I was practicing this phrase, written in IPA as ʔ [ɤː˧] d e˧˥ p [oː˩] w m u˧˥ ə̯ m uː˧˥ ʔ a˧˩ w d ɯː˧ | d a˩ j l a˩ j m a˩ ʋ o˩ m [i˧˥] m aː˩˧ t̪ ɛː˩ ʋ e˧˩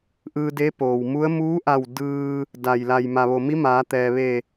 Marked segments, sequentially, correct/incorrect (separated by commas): incorrect, correct, correct